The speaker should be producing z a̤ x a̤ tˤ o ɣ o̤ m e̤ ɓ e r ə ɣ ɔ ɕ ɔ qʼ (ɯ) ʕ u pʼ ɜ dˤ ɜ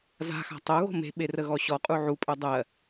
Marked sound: incorrect: u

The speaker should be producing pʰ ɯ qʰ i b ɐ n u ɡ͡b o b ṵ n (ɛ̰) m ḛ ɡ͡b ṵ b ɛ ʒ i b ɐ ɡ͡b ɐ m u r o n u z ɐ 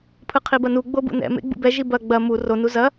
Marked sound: correct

